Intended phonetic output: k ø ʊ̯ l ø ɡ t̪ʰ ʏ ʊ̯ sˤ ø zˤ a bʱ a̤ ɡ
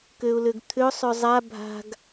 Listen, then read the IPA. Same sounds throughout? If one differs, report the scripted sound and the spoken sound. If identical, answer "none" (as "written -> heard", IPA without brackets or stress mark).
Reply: none